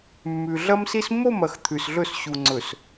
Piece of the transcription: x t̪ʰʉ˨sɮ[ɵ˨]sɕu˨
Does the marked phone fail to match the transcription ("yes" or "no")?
yes